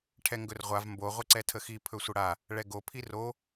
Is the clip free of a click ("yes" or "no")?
no